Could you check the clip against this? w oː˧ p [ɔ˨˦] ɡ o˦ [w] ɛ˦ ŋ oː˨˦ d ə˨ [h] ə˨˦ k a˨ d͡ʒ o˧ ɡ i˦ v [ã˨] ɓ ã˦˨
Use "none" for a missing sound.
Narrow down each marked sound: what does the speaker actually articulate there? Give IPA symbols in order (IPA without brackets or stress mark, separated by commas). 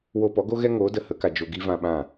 ɔ˨˦, ɣ, h, ã˧